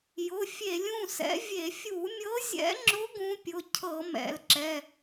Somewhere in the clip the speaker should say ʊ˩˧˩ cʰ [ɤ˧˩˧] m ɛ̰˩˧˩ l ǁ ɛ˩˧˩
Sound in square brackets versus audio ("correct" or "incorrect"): correct